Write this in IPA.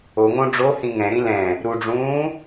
o ŋ õ ɖ͡ʐ o h ĩ ŋ ɛ̃ ɾ ĩ l ɛ̃ | ɾ u ɖ͡ʐ ũː

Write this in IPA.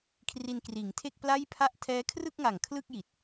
kʰ r i˧ n k r iː˩˦ ŋ tʰ e˥˩ k̚ p l a˥˩ j pʰ a˥˩ ʔ tʰ ɛː˦˥ kʰ r ɯ˥˩ k̚ ŋ a˨˩ ŋ kʰ l ɯ˥˩ k̚ j i˨˩ t̚

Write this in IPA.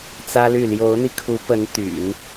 t͡s ä˥ l y˥˩ l j o˧˥ ʊ̯ n̪ i˧ kʰ u˧˥ p ə˧˥ n t̪ y̰˨˩˦ n

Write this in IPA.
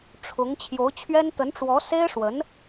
ʈ͡ʂʰ ʊ˧˥ ŋ t͡ɕʰ j o˧˥ ʊ̯ t͡ɕʰ ɥ ɛ˥ n t̪ ə˧˥ n ʈ͡ʂ w ɔ˧˥ s e˥ ɪ̯ ʂ w ə˧˥ n

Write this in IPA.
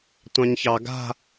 tʷ ɑ̃ ɲ ç ɑ ɡ a̤

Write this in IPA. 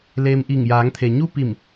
l eː˧ m ʔ i˧˩ ŋ j aː˩˧ ŋ t̪ʰ e˩ ɲ u˥˨ p i˧˩ m

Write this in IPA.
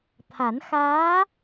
t̪ʰ a˨˩˦ n x aː˧˥

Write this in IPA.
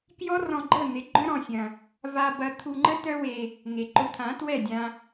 k j ɔ˦ r ɔ̃˧ ɡ͡ǃ ə˦˨ n̪ ɪ˨˦ ɡ͡ǃ œ̃˦ ɾ ɔ̃˧ sʲ ɐ̃˧ | v a˧ b ɐ˧ t̪ʰ u˧ ŋ͡ǃ ə˦ t œ˦ w e˧ | ŋ e˨ ǃ ʊ˧ t̪ʰ ã˨˦ t w ɛ˦˨ dʲ ã˧

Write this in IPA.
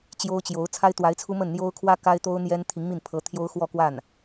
t͡ɕ j o˥ ʊ̯ t͡ɕ j o˧˥ ʊ̯ t͡sʰ a˥ ɪ̯ t̪ w a˧˥ ɪ̯ t͡sʰ u˥ m ə˥˩ n n̪ j o˥ ʊ̯ kʰ w ä˥ k a˥ ɪ̯ t̪ o˥ ʊ̯ n̪ j ɛ˥ n t̪ʰ i˧˥ ŋ m i˥˩ n pʰ ɤ˧˥ t̪ʰ j o˥ ʊ̯ x w ɔ˥˧ k w a˥˩ n

